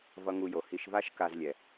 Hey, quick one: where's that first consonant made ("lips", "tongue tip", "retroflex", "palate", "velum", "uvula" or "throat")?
lips